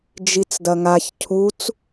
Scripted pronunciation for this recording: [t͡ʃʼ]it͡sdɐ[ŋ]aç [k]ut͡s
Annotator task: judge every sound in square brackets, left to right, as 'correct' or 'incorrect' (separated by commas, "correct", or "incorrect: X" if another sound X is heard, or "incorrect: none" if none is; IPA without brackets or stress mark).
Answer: incorrect: d͡ʒ, correct, incorrect: cʰ